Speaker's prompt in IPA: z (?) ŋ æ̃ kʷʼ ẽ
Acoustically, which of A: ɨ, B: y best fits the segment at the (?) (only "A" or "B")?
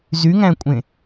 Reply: B